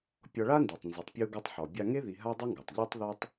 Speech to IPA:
pʲ ɔ˧ ɭ a˥ n d i˩ tˤ n z ø˩ tˤ pʲ u˧ ɡ o˧ tˤ ħ ɔ˩ bʲ a˧ ŋ e˥ ð i˧ ɦ a˥ dˤ ɛ˥ ŋ ɡ ɔ˩ tˤ ʎ ø˥ tˤ ð ɔ˥ tˤ

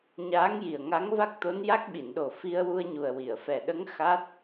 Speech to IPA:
ɲ aː˧˥ ŋ j i˨˩ ə̯ ŋ a˧˥ ŋ v a˦˥ k̚ t̪ o˧˥ n j a˦˥ k̚ ɓ i˨˩˨ n ɗ o˨˩ f i˧ ə̯ w u˧ ə̯ ɲ u˨˩ ə̯ w i˨˩˨ ə̯ f ɛ˨˩ ɗ ə˧˥ ŋ x a˦˥ t̚

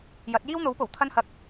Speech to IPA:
j ɐ˨˥ t̚ j iː˥ w n̪ o˨˥ w p o˨˩ w t̪ʰ ɐ˥ n h ɐ˧ k̚

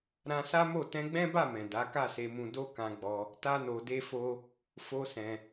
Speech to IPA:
ɾ ã˧ s a˦ m o˦˨ t ɛ̃˧ ɡ͡b ɛ̃˦ b a˦˨ m ɛ̃˨ d a˨˦ k a˦˨ s e˧ m ũ˧ d o˦ k ã˧ ɡ͡b ɔ˧ | t a˦ n o˧ d e˦ f o˦ | f o˦ s ɛ̃˧

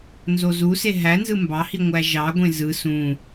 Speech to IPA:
n z o z u s e ɦ æ n z ɯ m b ɑ h i ŋʷ æ ʒ ɑ ɡʷ ẽ z ɯ s ũ

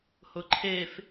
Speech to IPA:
h ʊ ǃʰ e f

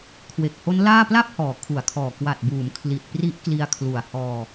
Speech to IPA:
kʰ w e˨˩ k̚ h o˦˥ n l aː˥˩ p l a˥˩ p̚ h ɔː˨˩ kʰ u˨˩ a̯ kʰ ɔː˨˩ k w a˨˩ t̚ b uː˩˦ m kʰ l i˨˩ t̚ p r i˦˥ ʔ k l i˧ a̯ kʰ l u˨˩ a̯ h ɔː˧

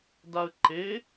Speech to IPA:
d a ə̯ ǃ e

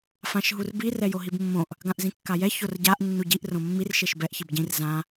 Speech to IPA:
f ã ʃ ɦ u r b i r ɛ j o ɦ i b mː õ ʔ | ɡ ã ʔ z ĩ kː a j ɛ ç o r ɟ a ʔ nː u ɟ i ʔ r õ mː i r ʃ e ʃ b ɛ ʔ ç i b ɟ ĩ r z ã

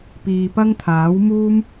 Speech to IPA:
p iː˧ p ɐ˥ ŋ t̪ʰ aː˨˥ w m uː˥ m

